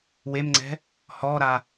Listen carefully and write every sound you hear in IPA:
w e m ŋ͡ǀ ɛ̤ | h ɔ ɾ a

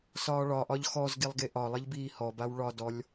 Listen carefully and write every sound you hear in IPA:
s ɒː ɭ ɒ ʔ ɒ ʎ x ɔ z ɡ i lˠ ɡ e ʔ ɒ lˠ i ʎ b iː h ɔ b a w ɭ ɒ d ɔ lʲ

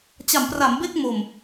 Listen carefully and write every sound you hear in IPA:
t͡ɕ a˩˦ m p r a˩˦ m b e˥˩ k̚ m o˨˩ m

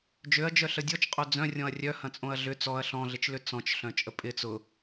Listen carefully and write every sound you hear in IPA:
d͡ʒ ø ɐ̯ d͡ʒ œ ɬ ə dʲ ɔ t͡ʃ qʼ o d͡z œ̃ rʲ ɔ̃ ɐ̯ rʲ œ h ɐ̃ t͡sʼ õ ɐ̯ ɮ ʏ t͡s ɔ ɐ̯ ɬ ɔ̃ ɮ ɪ t͡ʃ l ʏ t͡s ɔ̃ t͡ʃ ɬ œ̃ t͡ʃʼ ə pʼ ɪ t͡s ʊ

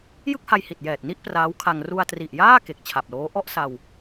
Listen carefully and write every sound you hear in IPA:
j ɯ˥˩ k̚ h a˧ j h i˨˩ t̚ j ɛː˨˩ t̚ n i˥˩ ʔ p r aː˦˥ w kʰ a˧ ŋ r u˧ a̯ t r i˨˩ ʔ j aː˥˩ k e˨˩ k̚ t͡ɕʰ a˨˩ p̚ l oː˦˥ ʔ ɔ˥˩ ʔ s a˧ w

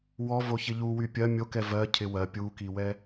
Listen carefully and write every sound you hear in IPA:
w ɔ v o ç ɪ ʎ u w y pʲ ɜ mʲ o k ɛ v ɜ cʰ ɪ w ɜ pʲ u k i w ɛ

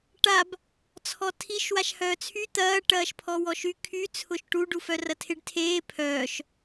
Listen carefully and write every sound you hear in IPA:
ʈ a b | t͡sʰ ɔ tʰ i ʃ w a ʃ h œː t͡sʰ y t̪ ɐː ʈ ɐː ʃ pʰ ɔ w ɔ ʃ y kʰ y t͡sʰ ʊ ʃ ʈ u ɖ u f œ r ɐ tʰ ɪ ɖ tʰ eː pʰ œː ʃ

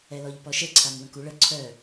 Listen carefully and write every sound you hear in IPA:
ɛ l ɔ ʎ p ɔ ʃ ə ǀʰ a m w ə̃ k u ɭ ə ǀʰ œ

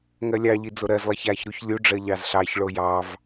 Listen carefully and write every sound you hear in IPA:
ŋ ɜ lʲ ɑ ʎ i d͡z o ɾ ɜ z lˠ ɜ ç a ç ɾ u ç lʲ u ɖ͡ʐ ɜ ʎ ɑ z ɬ ɑ ç ɭ o j ɑ v

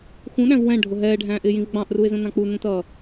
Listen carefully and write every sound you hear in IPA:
x ũ ɗ æ̃ v w ɛ̃ ɖʱ ʊ ɦ ɛː ɖʱ æ̃ː ʔ ɪː j ĩ v ɡ͡b ɑ̃ ʔ r u ɪ̯ z ə̃ n ɑ̃ k͡p u n ə̃ t ʌː

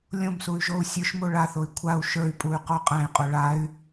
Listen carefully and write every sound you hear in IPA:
lʲ õ m s u y̯ ʒ o u̯ sʲ ə˞ ʃ m o ɭ a θ o i̯ kʷʰ a u̯ ʃ ə˞ y̯ pʼ u y̯ q o qʼ æ̃ i̯ qʼ o ɭ a y̯

